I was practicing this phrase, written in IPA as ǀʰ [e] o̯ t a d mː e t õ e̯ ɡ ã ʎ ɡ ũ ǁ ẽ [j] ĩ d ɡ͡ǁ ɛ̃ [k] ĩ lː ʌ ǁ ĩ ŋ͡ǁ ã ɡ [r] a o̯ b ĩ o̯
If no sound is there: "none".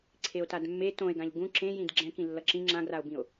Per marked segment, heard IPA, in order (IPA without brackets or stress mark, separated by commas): e, j, k, r